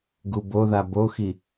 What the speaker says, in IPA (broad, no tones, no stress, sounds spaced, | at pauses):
ɡ u b o ð a b o x i